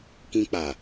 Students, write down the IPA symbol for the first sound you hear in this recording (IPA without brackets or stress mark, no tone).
k